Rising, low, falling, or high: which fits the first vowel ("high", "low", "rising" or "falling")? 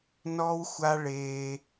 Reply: high